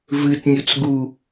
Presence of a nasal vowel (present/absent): absent